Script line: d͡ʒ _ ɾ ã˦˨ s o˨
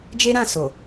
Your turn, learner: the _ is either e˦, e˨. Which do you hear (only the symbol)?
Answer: e˦